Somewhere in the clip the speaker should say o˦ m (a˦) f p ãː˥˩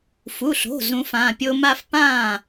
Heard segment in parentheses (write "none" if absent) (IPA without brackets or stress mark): a˦